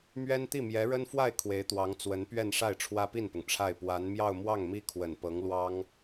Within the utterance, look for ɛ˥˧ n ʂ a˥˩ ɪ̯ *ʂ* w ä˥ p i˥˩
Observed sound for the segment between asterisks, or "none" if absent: ʈ͡ʂʰ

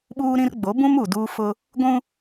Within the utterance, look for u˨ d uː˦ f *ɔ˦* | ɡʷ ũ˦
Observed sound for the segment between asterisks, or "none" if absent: ʊ˦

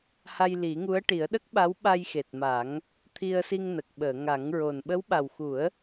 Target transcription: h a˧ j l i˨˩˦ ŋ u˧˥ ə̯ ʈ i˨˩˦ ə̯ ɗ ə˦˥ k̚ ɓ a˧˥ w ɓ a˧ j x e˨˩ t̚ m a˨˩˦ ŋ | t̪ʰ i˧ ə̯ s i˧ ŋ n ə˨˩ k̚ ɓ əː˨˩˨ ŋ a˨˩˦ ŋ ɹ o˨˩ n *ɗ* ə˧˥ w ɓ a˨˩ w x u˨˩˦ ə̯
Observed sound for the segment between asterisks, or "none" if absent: ɓ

